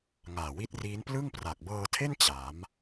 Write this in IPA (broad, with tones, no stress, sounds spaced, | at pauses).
ŋ aː˨˩ w i˦˥ t̚ r iː˦˥ n p l ɯ˥˩ ŋ p r a˨˩ k̚ b ɤː˧ tʰ e˥˩ n t͡ɕ a˩˦ m